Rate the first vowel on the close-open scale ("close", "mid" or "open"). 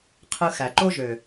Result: close